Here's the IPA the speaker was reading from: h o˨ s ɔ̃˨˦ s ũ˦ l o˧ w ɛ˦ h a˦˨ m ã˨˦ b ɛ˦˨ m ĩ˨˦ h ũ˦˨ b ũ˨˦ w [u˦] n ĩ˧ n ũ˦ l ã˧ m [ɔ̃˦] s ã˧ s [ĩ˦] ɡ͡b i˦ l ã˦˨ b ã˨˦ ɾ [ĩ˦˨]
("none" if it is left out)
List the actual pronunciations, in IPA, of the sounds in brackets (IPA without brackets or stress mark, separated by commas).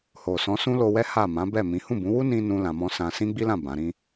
u˦, ɔ̃˦, ĩ˦, ĩ˦